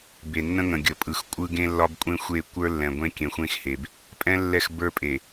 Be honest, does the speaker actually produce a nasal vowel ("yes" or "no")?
yes